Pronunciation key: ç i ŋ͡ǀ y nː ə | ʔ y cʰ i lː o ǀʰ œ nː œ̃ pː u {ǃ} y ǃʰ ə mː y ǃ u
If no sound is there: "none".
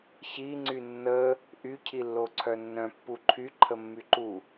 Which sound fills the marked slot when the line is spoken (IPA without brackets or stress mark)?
ǃʰ